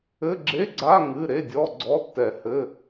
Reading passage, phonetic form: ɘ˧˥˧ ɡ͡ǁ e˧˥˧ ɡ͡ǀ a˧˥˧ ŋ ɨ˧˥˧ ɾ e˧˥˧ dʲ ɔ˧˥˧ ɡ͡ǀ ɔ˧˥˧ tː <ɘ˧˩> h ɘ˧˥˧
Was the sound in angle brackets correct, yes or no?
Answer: no